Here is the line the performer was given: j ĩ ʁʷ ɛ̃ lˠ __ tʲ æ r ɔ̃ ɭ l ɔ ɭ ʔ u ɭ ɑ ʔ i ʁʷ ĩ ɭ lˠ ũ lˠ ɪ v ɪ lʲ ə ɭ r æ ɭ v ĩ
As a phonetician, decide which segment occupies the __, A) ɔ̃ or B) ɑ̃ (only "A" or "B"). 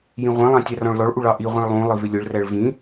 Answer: B